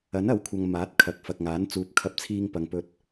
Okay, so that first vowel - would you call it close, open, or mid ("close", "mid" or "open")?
open